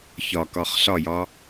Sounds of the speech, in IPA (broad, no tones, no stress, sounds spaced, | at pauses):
ç ɒ k ɒ χ ɬ ɒ j ɒ